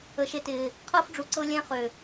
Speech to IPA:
ə˨ ʃ e˧ t ɪː˨ | qʰ ɤː˦ f ɖ͡ʐ u˨ ǀ ɤ˧ lʲ ɛ̃˧ χ ø˨

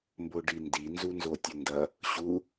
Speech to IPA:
m b o ɖ i n d i n z u n z o tʲ ɵ n d ɐ | ɕ u

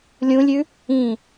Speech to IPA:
lʲ ũ lʲ ʉ | ĩ

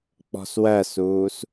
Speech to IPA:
k͡p ɔ̤ s w ɜ s uː s

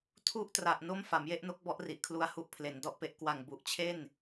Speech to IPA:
tʰ u˥˩ ʔ t r a˨˩ ʔ n o˥˩ m f a˩˦ m j e˥˩ ʔ n o˦˥ k̚ b ɔ˦˥ ʔ r i˨˩ ʔ kʰ l u˧ a̯ h u˦˥ ʔ pʰ l e˩˦ n d ɔ˥˩ ʔ p e˦˥ ʔ k w a˨˩ ŋ b u˨˩ ʔ t͡ɕʰ e˥˩ n

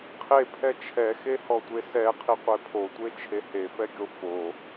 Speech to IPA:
qʰ e pʰ ɛ t͡ʃʰ ɛ x e h ɔ tʷ e s ɛ qʰ i qʷ e pʰ o tʷ e t͡ʃʰ e h e f ɛ ɡʲ o f o

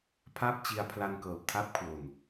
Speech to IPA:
pʰ aː˥˩ p̚ t͡ɕ i˧ a̯ pʰ l a˧ n k ɤː˨˩ p̚ tʰ a˦˥ p̚ kʰ w o˨˩ n

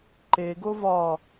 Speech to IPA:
ǃ e ɡ o v ɒ

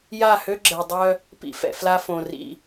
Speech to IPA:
j a˦˨ h ø˦ ɡ͡ǁ ɛ˨ dˤ œ˦ | p ḭ˦ f ɛ̰˨ f l a˦ f õ˨ r ḭ˦

